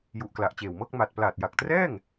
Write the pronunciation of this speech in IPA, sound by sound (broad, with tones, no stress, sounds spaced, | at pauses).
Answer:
j u˨˩ ʔ k l a˨˩ ʔ t͡ɕ eː˨˩ w m ɤː˥˩ k̚ m a˨˩ t̚ p l aː˨˩ t̚ j a˨˩ k̚ t r ɛː˥˩ ŋ